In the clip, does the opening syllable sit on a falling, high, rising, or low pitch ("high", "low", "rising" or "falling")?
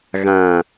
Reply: low